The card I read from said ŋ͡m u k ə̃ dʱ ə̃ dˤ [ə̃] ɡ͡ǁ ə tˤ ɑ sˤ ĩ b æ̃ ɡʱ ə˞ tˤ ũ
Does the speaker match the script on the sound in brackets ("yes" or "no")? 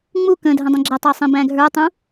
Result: yes